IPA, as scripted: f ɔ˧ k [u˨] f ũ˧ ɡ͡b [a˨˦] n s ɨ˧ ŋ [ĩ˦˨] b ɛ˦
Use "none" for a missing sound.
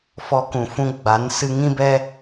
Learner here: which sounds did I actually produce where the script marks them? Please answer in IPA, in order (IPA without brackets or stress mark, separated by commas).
ũ˨, a˨˦, ĩ˦